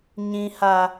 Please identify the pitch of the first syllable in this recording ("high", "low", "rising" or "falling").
high